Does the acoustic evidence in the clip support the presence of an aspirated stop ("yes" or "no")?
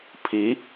yes